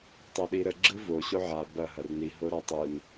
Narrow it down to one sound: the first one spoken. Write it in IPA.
tˤ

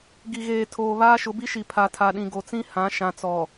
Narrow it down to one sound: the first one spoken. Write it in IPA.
ɡ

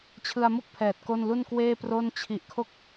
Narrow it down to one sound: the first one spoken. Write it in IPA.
t͡ɕʰ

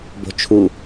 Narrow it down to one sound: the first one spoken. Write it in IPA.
b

